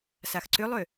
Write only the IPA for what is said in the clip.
s a x ǀ ʏ lˠ ø

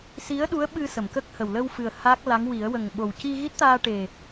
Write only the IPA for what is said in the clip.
s i˧˥ ə̯ ɗ u˧˥ ə̯ ɓ ɨ˧ s ə˨˩˨ m k ə˦˥ k̚ h ə˨˩ w l ə˧ w f ɨ˨˩ ə̯ h a˦˥ k̚ l a˧˥ ŋ w i˨˩˦ ə̯ w ə˨˩ ŋ ɓ o˨˩ w c i˧ ɣ i˦˥ t̚ t̪ aː˧ ʈ e˨˩

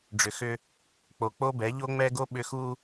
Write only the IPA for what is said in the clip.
ɖ͡ʐ ʏ˨ x ʏ˦ | k͡p o˨ k͡p o˦ b ɛ˨˦ ʎ o˦ ŋ͡m ɛ˦ ɡ o˦ ɓ ʏ˦ x u˦

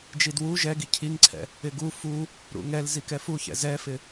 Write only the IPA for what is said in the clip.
d͡ʒ i d w u ʒ ɛ ɡ i cʰ i ŋ ǀʰ ɛ̰ | ɪ ɡ u f u | ɾ ṵ ŋ ɛ l z i k ɛ f u ç ɛ̰ z ɛ f ɪ

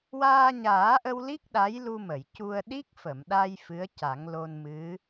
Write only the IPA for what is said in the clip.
w aː˧ ɲ aː˨˩˦ ʔ ə˧ w l i˦˥ k̚ ɗ a˧˥ j l u˧ m ə˨˩˨ j c u˧ ə̯ ɗ i˦˥ k̚ f ə˨˩˨ m ɗ a˧ j f ɨ˧˥ ə̯ c a˨˩˦ ŋ l o˧ n m ɨ˧˥

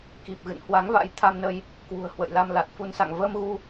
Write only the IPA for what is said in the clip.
k i˨˩ p̚ ɣ ɨ̰˧˨ n h w a˨˦ ŋ v a̰˧˥ j t̪ʰ a˧ m n ə˧ j | k w ṳ˨˩ ə̯ h w ə̰˧˨ j l a˧ m l a˨˩ t̚ f u˧ n s a̰˧˨ ŋ v əː˧ m ɣ u˧

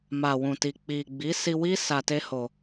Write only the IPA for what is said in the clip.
m a˨ w ũ˨ t i˨ k͡p i˨ ɡ͡b i˨˦ s i˧ w i˦ s a˧ t e˦ h o˧

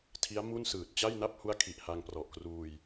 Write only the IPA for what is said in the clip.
tʰ i˦˥ a̯ m u˥˩ n s ɯː˨˩ t̚ t͡ɕ a˥˩ j n a˥˩ p̚ h u˦˥ a̯ kʰ i˨˩ ʔ h a˧ ŋ p r ɔ˨˩ ʔ k r uː˧ j

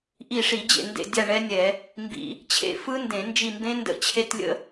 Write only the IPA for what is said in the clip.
ʔ i˦˨ ʂ i˧˩˧ d͡ʑ ḛ˦˨ n d ḛ˦˨ dʲ a˦˨ ɳ ɛ˦˥ nʲ ɛ˧˩˧ | m b ḭ˧˩˧ | t͡ɕʰ ḛ˦˨ f ɯ˦˥ n d ẽ˧˩˧ n d͡ʒ i˦˨ m b ẽ˦˥ n d ə̰˦˨ t͡ɕʰ e˦˥ t lʲ ə̰˦˥

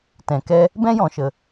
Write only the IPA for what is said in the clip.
t ɛ̃˨ k ɛ˧ | b ɛ̃˦ j ɔ̃˨ ʃ ə˨

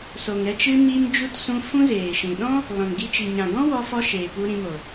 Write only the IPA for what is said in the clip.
s o˨ ŋ ɾ ɛ˧ t͡ʃ ɨ˧ m i˦ m d͡ʒ u˦ t s ũ˧ f ũ˦ z eː˨ ʃ ĩ˨ ɗ ɔ̃˦ | l ɔ̃˨ n ɡ i˧ t͡ʃ i˨ ɲ ã˨ ɡ ɔ̃˦ w ɔ˧ f ɔ˧ ʃ eː˨ p u˧ ɾ ĩ˧ m o˨

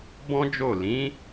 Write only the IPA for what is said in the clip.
b ɔ̃˦ d͡ʒ o˦˨ l ĩ˨˦

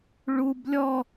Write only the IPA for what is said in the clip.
ɭ u b lʲ ɔ

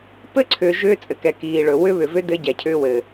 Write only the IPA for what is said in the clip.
p ɘ˦ ǀʰ ʏː˨ ʒ ʏː˦ t͡sʼ ɘ˨ k ɛ˨ k iː˨ ɭ ɵ˨ w ʏ˦ β ʏ˨ v ʏ˦ d ɘ˦ ɟ ɛ˨ cʰ ʏː˦ w ɘ˨

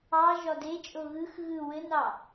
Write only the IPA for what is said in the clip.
ɑ ʒ ɒ d e t͡ʃʼ o ɣ ɯ x ɣ ɯ w ɘ n ɑ

